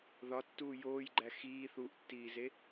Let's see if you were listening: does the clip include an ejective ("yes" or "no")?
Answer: no